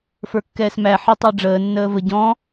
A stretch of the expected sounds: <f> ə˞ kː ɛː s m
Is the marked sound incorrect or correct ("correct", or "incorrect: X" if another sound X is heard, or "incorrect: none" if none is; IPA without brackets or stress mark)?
correct